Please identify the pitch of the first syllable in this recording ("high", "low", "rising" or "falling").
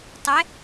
rising